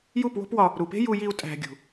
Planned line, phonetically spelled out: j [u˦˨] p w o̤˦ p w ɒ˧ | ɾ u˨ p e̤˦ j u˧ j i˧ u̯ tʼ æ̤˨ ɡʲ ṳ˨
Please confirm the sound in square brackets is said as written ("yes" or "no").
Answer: yes